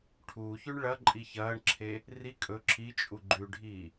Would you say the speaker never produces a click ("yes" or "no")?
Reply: no